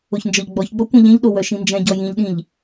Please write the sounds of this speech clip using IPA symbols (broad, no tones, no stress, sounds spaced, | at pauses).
o ç n d͡ʒ ɔ ʎ ɡ͡b ɔ ç ɡ͡b ɔ kʷ ẽ ʎ ẽ ʎ ɗ o w œ ʃ ĩ n d͡ʒ ɛ̃ ɟ ɔ j ĩ ʎ ɗ ĩ ʎ